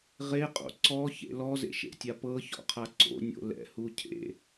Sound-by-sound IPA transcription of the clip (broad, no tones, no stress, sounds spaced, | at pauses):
ʁ e qʼ o̰ ǀ ɔ ç ḛ l ɔ z ḛ ʃ ḛ tʲ a p ɤ ç ɔ̰ qʰ a ǀ o̰ nʲ o̰ l ɛ̰ h u cʰ ḛ